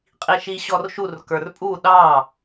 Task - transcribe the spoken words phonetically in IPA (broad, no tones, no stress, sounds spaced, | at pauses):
qʼ i ʃ i ɕ ɔ r ʃ u r k ə˞ r pʼ u ɗ ɑ